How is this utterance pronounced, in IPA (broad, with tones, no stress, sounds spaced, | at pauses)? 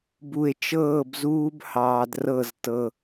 b u˨ e̯ t͡ʃ ɤː˦˨ b z uː˦ b h ɑː˨ d r ɤ˦˨ z t ɤ˦